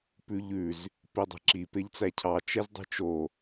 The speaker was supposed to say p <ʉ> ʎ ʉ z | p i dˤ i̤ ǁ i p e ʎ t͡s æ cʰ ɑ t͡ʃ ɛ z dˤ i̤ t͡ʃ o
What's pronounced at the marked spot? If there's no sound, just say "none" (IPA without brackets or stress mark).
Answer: ʉ